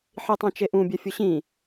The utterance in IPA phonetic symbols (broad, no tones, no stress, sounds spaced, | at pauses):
ħ i tˤ ĩ t͡ʃ e ʔ ũ bʲ ɛ fʲ ʊ ɕ ĩ